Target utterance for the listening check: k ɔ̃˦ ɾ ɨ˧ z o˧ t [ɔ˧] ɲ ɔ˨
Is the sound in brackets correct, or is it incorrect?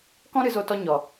correct